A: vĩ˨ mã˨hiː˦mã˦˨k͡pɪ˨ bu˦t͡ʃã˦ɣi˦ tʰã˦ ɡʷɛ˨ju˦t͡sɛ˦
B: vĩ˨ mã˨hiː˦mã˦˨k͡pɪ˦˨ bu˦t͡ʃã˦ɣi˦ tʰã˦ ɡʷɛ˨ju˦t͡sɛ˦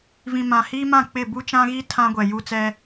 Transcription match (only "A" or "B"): B